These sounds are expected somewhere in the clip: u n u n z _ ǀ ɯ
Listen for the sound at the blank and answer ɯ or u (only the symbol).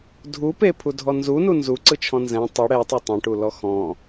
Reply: u